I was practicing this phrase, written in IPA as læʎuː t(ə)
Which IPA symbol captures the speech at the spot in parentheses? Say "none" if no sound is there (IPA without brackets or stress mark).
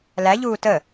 ə